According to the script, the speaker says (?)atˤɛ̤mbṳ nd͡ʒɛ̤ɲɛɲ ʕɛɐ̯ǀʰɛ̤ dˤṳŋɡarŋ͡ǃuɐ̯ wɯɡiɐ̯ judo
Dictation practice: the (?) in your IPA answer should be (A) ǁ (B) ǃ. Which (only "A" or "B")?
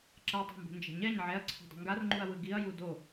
A